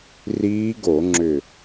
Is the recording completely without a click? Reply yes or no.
no